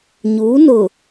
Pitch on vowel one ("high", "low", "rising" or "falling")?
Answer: rising